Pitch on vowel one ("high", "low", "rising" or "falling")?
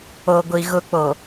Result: low